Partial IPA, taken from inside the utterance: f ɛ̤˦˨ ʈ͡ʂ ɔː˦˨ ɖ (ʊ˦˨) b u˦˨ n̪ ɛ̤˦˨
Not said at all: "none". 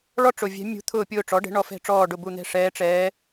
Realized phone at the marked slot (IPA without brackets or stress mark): ʊ˦˨